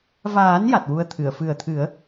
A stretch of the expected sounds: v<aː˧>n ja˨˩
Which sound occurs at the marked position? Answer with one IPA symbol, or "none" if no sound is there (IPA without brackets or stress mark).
aː˨˩˦